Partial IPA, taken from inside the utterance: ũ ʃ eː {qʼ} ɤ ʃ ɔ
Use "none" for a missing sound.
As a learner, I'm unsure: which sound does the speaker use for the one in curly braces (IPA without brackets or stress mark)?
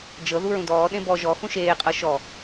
qʼ